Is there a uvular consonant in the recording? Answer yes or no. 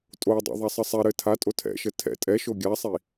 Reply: no